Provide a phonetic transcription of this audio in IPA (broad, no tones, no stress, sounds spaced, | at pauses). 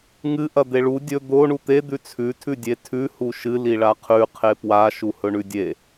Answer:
ŋ ɨ ʔ ɐ d̪ e ɭ u dʲ ɵ d̪ o ɳ u t̪ e d̪ ʉ t͡sʰ ʉ tʰ ʉ dʲ e tʰ ʉ h u ʃ ɨ l i ɭ a qʰ ʉ qʰ e p w a ʃ u h ɵ ɳ ʉ dʲ e